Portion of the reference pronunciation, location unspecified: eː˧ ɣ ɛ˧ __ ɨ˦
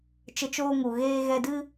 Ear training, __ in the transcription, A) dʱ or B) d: B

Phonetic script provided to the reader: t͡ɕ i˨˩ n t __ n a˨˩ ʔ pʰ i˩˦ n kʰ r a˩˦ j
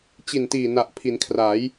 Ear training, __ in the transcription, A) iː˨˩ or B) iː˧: A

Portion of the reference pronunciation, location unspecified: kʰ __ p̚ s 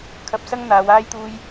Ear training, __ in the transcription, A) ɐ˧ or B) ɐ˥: A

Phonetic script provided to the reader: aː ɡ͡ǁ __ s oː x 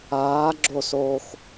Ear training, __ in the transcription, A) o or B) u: A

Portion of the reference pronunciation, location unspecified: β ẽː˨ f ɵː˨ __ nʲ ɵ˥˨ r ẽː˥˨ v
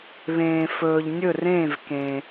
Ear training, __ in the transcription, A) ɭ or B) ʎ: B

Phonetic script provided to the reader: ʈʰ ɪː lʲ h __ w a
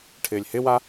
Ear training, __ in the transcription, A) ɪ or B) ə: A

